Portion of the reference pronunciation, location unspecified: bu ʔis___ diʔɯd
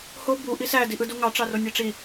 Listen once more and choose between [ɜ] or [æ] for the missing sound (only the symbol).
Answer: æ